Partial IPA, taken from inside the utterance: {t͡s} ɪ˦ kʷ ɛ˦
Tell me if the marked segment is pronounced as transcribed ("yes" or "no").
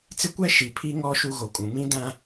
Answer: yes